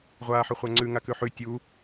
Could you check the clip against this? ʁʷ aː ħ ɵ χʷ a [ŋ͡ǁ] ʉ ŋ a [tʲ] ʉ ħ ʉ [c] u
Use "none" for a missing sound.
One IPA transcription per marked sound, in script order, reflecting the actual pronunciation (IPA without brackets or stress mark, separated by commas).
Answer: ŋ͡ǀ, k, tʲ